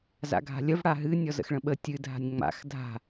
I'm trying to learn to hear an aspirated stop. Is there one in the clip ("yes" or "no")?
no